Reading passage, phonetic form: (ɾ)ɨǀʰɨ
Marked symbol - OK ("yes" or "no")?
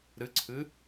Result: yes